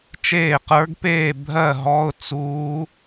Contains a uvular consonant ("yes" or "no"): yes